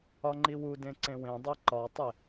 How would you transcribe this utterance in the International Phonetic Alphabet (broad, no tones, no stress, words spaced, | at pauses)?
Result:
ɒŋ͡ǃiwu dẽǀẽwẽdˤe ǃɒtˤe